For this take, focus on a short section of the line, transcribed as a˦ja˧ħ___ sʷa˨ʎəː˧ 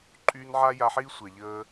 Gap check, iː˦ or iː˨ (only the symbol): iː˦